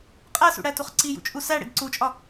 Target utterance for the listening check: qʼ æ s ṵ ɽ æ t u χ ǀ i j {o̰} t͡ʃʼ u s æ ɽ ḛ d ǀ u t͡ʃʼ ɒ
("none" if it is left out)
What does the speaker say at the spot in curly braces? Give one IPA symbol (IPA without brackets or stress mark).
ṵ